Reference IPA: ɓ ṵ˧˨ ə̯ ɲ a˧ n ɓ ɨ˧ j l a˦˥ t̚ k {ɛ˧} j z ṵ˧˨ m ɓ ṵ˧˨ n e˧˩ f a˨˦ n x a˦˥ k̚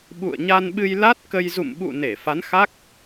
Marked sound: incorrect: ə˧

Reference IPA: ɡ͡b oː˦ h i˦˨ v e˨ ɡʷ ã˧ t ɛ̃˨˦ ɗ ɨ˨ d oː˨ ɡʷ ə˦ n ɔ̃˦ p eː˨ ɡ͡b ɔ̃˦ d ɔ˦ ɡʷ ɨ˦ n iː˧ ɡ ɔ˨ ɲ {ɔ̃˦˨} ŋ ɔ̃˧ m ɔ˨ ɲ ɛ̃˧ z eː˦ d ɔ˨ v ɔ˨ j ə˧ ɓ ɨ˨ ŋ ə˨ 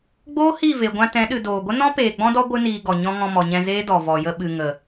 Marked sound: incorrect: ɔ̃˧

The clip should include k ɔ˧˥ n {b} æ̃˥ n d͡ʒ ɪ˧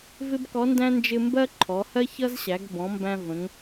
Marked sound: incorrect: d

